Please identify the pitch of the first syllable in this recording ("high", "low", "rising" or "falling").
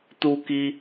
high